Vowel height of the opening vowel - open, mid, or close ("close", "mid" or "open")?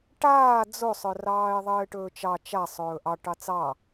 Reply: open